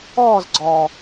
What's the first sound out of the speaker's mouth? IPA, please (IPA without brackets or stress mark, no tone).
ɔː